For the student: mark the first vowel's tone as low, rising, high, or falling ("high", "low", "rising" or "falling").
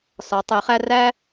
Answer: rising